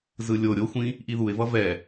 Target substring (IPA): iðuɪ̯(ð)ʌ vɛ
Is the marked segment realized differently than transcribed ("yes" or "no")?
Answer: yes